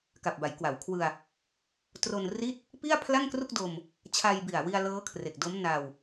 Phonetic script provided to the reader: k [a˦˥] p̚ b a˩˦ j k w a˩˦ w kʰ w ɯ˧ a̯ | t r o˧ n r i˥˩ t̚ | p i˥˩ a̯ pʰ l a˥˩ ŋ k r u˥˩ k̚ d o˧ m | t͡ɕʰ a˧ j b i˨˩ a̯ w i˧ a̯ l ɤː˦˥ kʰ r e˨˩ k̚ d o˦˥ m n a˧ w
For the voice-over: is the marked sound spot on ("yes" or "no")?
no